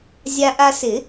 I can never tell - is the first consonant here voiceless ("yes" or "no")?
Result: no